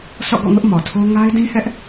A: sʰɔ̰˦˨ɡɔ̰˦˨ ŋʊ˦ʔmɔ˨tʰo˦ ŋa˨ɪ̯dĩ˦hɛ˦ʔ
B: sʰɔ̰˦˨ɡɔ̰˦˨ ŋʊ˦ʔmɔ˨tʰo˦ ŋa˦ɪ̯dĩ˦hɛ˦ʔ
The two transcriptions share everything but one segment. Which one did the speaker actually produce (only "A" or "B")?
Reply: B